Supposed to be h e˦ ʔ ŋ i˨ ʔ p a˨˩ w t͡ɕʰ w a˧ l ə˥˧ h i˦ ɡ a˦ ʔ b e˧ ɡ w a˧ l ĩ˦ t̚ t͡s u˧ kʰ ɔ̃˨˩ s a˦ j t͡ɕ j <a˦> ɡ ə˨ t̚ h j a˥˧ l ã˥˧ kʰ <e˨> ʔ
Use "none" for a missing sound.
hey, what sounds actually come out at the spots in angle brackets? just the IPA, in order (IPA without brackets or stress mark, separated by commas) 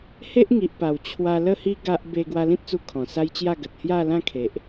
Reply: a˥˧, e˨